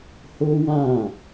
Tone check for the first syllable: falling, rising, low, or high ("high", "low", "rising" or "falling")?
high